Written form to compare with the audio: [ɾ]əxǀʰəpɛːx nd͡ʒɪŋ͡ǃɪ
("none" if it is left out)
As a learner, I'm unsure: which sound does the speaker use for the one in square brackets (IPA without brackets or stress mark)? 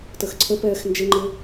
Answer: t